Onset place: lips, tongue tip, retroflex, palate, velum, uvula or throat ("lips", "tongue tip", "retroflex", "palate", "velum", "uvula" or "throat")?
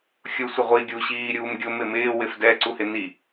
velum